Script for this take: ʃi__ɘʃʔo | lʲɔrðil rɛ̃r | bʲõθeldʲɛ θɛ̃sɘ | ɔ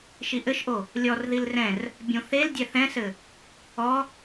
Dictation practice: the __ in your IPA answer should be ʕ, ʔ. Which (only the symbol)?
ʔ